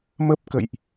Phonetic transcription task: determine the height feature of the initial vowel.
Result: mid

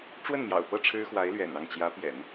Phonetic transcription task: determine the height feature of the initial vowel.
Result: mid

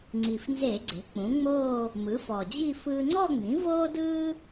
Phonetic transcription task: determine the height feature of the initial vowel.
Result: high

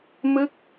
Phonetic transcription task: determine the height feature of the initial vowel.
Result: high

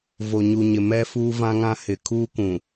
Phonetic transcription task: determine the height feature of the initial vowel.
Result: mid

